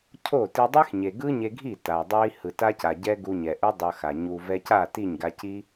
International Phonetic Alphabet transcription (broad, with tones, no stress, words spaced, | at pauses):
cʰo˦˨ ti˧dˤe˦xɲe˨ ɡɯ˦ɲe˧ɡʱi˦˨ ta˨dˤa˦i̯ hɯ˨ta˦ca˨ɟɛ˦ ɡu˧ɲɛ˨ʔu˦ dˤʌ˧xa˨ ɲu˨vɛ˧ca˦˨ ti˦˨ɲɡa˧ci˦